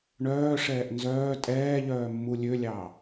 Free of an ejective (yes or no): no